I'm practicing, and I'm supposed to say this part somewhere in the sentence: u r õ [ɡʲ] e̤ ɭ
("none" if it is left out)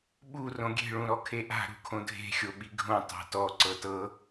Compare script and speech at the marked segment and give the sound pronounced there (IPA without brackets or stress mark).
ɡʲ